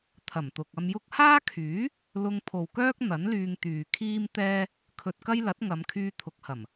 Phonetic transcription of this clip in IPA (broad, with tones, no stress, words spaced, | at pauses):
t̪ʰɐ˨˩mt̪ʊ˨k̚ɐ˧mjʊ˥k̚ haː˥kʰyː˨˥ | lʊ˧ŋpʰo˨wkœː˥k̚ n̪ɐ˨˥nlyː˧ŋt̪yː˨ kʰiː˥mt̪ɛː˥ | kʰɵ˧t̚kɐ˥jlɐ˨˥t̚ ŋɐ˨˧mkʰyː˧ t̪ʰʊ˨k̚hɐ˨˩m